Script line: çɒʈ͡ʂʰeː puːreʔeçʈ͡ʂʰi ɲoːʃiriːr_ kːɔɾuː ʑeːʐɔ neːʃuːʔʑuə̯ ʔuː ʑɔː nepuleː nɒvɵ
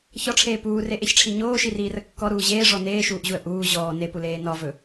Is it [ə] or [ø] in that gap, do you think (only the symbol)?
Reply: ə